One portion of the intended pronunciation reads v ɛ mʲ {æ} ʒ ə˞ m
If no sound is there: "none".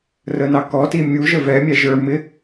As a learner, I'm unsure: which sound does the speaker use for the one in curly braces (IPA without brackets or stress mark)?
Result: æ